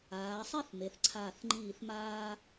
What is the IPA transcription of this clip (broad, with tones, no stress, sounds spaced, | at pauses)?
aː˩˧ sˤ e˥˧ θ m e˩˧ θ ǀʰ aː˧˩ θ ŋ͡ǃ iː˧˩ θ m aː˧